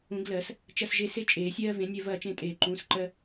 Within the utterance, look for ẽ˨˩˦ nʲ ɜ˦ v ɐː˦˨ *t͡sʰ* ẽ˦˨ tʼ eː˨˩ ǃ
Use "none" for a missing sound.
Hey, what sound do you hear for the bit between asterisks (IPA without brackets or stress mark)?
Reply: t͡ʃ